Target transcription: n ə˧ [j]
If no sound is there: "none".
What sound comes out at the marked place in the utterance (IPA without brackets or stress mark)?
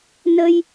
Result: j